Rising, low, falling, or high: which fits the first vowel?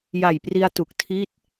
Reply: low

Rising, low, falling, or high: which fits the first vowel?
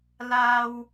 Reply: high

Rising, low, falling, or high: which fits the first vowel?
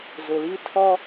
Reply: low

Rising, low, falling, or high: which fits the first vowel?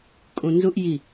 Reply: low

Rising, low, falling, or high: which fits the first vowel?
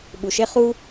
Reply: low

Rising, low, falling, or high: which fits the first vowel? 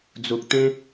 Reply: low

